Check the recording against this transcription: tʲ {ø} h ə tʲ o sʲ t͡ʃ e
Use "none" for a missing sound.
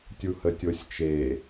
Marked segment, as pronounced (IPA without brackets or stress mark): u